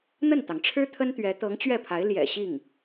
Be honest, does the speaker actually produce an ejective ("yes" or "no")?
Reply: no